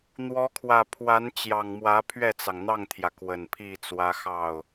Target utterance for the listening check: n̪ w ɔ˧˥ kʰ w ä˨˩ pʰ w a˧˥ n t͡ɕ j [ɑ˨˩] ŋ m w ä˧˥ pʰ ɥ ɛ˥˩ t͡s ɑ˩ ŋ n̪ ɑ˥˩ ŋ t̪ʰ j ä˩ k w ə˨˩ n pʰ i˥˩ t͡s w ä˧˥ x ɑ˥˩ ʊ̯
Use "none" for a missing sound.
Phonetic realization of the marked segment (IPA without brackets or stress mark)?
ɑ˨˩